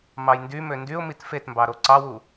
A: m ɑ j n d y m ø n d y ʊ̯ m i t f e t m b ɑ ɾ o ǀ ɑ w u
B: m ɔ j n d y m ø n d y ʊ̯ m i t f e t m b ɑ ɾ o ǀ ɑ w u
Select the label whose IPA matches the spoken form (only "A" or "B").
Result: A